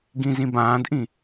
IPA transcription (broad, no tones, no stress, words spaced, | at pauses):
ɡĩzĩbãːdʔĩ